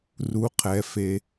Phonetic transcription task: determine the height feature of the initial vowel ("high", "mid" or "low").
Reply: high